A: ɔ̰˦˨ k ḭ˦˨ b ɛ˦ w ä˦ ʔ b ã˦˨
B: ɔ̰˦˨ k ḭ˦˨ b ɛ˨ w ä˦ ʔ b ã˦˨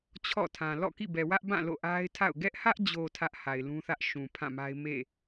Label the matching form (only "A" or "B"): B